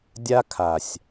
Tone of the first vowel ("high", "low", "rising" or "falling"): high